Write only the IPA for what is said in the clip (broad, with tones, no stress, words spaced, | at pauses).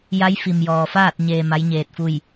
ja˧˥jfi˩mjɔː˩faː˥˨t̚ ɲeː˧ma˧˥jɲeː˧t̚fu˥˨j